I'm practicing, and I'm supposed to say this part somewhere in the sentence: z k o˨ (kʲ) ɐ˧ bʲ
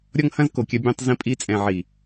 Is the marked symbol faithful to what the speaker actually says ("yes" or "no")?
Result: yes